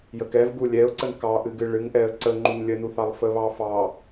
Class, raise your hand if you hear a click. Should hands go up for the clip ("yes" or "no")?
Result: yes